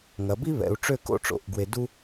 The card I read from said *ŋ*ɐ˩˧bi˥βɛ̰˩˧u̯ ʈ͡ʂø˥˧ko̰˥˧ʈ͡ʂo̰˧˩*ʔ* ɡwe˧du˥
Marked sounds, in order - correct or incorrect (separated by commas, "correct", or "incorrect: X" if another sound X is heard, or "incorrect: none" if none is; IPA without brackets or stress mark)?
correct, correct